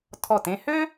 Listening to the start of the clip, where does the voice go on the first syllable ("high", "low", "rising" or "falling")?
falling